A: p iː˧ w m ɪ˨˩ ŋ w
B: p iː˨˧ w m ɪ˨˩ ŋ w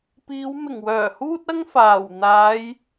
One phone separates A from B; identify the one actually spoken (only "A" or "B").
B